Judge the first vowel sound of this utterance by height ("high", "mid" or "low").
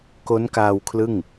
mid